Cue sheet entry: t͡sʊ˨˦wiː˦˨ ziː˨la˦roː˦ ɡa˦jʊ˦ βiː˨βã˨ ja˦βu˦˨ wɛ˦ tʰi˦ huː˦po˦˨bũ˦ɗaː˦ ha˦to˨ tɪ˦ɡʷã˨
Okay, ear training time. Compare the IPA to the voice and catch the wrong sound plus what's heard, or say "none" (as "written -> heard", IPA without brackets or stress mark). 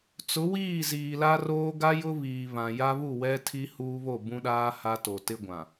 p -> β